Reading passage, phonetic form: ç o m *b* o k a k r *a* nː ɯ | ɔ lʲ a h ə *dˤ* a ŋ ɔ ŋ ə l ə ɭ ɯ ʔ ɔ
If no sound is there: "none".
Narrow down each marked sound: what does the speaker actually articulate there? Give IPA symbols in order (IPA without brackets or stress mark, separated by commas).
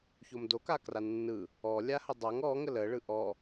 d, a, dˤ